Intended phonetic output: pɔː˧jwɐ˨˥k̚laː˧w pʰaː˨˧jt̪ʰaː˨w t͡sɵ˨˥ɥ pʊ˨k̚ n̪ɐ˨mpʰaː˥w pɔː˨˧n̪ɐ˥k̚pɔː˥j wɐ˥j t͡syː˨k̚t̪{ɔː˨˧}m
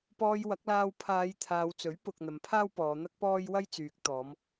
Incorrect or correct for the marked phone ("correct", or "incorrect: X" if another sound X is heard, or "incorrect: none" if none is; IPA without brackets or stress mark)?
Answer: correct